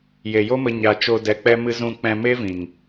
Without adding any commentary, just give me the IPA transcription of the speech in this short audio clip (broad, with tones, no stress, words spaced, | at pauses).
je˨jo˦mə˧ ɲa˨t͡ʃo˧ dɛ˨k͡pɛ˧ mɨ˧zũ˧k͡pɛ̃˧ me˦vĩ˨ŋ